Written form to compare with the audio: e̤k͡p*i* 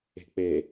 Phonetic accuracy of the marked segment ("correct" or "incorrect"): incorrect